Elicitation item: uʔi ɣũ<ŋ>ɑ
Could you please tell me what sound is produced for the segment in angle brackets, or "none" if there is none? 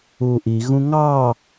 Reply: ŋ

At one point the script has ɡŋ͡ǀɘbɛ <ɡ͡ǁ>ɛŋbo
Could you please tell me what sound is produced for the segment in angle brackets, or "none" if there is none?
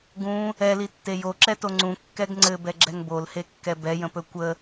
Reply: ɡ͡ǁ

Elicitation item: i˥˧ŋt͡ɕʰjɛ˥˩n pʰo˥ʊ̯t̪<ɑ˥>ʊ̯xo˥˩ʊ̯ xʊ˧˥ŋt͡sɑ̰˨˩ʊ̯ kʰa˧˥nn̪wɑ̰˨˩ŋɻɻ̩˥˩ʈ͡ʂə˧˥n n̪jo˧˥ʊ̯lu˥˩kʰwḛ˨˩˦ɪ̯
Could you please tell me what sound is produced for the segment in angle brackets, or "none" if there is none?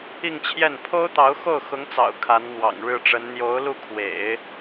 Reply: ɑ˧˥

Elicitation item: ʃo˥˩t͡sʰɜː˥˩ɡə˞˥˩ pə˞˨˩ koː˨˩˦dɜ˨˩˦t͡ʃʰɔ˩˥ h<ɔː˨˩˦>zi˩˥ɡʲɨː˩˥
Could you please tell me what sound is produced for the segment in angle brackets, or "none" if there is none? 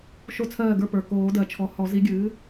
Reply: ɔ˨˩˦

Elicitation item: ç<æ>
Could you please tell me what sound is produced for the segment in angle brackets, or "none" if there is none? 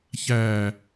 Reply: æ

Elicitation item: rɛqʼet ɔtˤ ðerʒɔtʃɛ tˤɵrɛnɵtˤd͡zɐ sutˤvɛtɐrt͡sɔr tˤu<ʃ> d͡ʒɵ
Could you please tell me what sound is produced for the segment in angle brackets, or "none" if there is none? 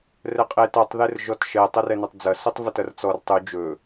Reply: none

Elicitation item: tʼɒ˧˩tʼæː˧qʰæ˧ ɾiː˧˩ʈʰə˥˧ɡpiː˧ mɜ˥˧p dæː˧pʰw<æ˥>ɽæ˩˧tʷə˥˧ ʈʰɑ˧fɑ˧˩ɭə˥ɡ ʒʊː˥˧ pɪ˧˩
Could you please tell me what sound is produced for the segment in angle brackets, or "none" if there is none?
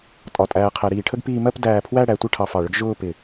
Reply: æ˥˧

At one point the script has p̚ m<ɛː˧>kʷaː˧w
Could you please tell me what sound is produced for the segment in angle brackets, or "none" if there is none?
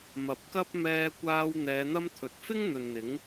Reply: ɛː˧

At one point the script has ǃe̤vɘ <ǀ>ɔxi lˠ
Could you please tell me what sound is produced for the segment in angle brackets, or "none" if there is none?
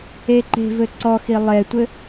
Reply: ǀ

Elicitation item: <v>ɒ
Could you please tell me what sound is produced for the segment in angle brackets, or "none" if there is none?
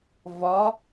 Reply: v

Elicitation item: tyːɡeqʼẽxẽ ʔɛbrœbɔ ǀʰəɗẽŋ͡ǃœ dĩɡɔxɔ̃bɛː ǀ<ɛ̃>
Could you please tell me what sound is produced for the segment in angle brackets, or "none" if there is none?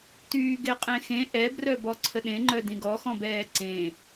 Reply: ẽ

